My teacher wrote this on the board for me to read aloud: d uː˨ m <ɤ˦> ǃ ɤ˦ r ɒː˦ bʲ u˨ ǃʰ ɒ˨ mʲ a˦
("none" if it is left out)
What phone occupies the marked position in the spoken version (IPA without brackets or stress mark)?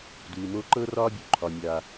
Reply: o˦